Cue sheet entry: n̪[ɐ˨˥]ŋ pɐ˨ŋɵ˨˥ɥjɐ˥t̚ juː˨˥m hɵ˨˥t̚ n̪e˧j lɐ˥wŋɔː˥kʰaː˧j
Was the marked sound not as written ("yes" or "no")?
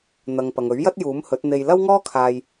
yes